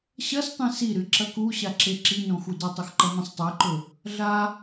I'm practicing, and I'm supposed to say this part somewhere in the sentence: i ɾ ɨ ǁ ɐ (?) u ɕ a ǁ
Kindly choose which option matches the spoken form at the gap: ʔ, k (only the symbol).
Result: k